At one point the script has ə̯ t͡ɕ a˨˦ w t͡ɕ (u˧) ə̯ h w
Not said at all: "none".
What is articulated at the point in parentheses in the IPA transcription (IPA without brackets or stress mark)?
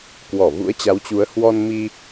u˨˦